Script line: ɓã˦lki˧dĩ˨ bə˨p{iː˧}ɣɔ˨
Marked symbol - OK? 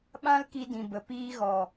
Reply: yes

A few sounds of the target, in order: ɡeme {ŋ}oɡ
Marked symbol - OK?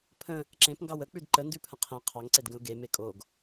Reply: no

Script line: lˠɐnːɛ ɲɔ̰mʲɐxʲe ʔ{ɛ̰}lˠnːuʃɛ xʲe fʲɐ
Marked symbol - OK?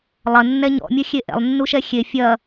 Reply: yes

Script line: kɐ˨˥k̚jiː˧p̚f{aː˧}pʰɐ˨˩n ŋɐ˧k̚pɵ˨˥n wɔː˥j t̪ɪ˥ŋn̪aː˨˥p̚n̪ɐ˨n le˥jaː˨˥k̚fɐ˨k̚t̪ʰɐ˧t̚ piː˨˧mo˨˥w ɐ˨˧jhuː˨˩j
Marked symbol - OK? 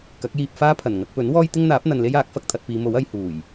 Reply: no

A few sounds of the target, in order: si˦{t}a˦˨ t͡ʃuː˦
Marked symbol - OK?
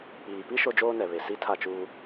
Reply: no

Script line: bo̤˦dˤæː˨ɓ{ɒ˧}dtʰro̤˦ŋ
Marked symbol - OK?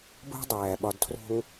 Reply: yes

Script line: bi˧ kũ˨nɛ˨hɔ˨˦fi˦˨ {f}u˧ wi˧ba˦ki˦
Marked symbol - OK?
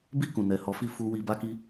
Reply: yes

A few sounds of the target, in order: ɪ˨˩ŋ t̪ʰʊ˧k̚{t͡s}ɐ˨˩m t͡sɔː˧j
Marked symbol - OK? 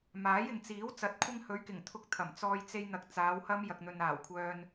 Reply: no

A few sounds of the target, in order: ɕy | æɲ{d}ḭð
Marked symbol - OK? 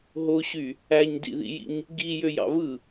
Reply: yes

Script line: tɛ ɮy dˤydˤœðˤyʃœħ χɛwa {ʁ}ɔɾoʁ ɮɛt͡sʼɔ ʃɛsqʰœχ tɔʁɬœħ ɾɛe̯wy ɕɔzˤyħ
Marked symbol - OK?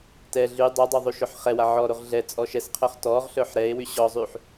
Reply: no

